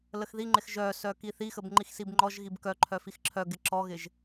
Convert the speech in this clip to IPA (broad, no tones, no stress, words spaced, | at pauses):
ləxðiŋ͡ǃɪx ʒœsœ kiθixəb ŋ͡ǃixsibŋ͡ǃɔʒɣib kœǃʰœ fixǁʰœɡɪ ǁɔɣɪʒ